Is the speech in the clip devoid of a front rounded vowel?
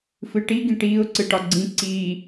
yes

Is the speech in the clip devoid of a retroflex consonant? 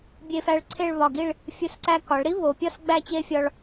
no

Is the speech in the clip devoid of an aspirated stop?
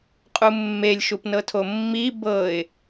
no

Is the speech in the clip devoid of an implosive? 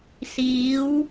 yes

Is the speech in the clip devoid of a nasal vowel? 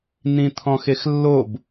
no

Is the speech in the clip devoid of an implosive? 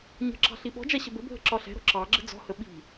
no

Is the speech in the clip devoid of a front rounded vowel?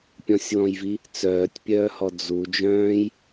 no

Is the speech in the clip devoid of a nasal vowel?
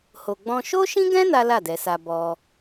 no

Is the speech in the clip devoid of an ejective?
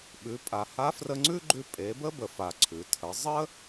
no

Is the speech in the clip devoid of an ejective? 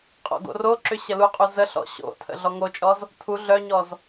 no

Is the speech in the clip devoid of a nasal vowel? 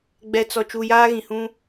no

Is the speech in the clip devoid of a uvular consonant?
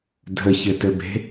yes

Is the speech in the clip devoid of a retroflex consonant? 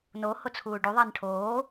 no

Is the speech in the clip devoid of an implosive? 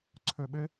no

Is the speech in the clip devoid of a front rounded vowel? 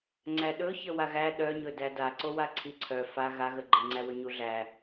no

